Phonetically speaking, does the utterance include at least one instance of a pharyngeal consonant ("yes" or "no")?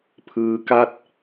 no